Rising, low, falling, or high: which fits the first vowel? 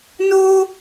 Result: high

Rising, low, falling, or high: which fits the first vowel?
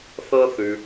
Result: high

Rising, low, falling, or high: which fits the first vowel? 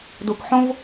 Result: low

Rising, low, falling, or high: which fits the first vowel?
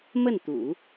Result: falling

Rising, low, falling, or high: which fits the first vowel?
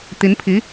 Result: rising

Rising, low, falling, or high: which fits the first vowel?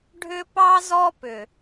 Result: high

